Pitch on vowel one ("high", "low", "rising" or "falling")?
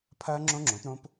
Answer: high